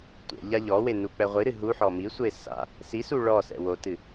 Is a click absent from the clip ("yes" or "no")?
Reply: yes